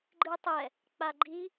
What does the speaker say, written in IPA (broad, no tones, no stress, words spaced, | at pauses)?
ɡ͡ǃɨtˤɛ | k͡paɡ͡ǃi